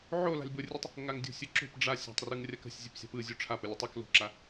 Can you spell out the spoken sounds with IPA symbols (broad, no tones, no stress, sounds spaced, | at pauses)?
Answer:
ʕ o l a̤ lʲ b ʊ rʲ ɨ tˤ | ŋ a ŋ dʲ o̤ sʲ ɯ ǁ o̤ p ɖ͡ʐ a sʲ a̤ tˤ r ɯ ŋ rʲ a k ə̤ sʲ zʲ ɨ p sʲ a̤ p ɯ zʲ o ʈ͡ʂʰ a p ə lʲ ɯ tˤ ɯ k l o̤ ǁ a